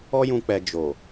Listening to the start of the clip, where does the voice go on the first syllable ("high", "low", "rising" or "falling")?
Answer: high